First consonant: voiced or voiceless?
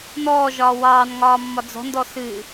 voiced